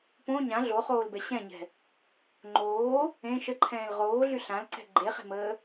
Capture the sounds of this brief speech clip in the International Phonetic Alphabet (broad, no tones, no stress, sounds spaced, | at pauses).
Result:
p õ ɲ ã ɮ o χ oː l b ɛ ɕ ɛ̃ ɲ ɛ̤ | ŋ͡ǃ oː | ẽ ʃ ə ǃʰ ɛ̃ː l ʁ oː ɮ y ɬ ã l ǀ ɛ̤ ɡ͡ǃ e χ e̤ m əː